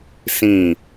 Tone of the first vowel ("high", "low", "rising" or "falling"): falling